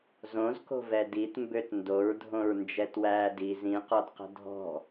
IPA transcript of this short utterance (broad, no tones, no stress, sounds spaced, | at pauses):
z õ z k o̤ v ɛ d i t m b ø t n d o ɹ dʱ õ ɹ n d͡ʒ ɛ t w æː d i z ĩ q ɔ d q ə̤ dʱ ɔ̤